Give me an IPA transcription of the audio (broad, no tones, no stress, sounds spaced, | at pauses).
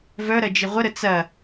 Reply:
v œ ɾ ɐ d͡ʒ ɪ ʁʷ ə ɾ ə t͡s ɐ